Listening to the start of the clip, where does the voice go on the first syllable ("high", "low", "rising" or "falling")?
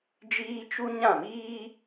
high